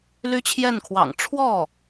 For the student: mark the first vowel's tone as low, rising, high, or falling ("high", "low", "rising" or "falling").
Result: high